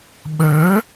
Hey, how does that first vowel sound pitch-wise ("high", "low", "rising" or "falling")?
rising